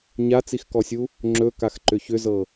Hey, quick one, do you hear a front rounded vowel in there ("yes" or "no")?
yes